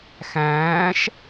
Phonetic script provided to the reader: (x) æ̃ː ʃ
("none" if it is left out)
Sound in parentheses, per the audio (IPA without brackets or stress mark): x